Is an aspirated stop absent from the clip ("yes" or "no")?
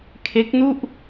no